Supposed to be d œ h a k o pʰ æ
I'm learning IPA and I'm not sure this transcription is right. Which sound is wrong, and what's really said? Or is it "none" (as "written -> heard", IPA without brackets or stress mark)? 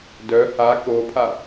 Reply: æ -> a